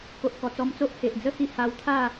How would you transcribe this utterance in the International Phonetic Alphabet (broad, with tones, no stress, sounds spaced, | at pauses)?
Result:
k o˨ ʔ k ɔ˨˩ t͡s ɔ˧ m t͡s o˦ ʔ h e˨ ʔ d͡z ə˦ h i˧ h a˧ w t̪ʰ a˥˧